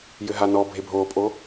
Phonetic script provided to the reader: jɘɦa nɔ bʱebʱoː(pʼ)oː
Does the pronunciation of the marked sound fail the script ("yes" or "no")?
no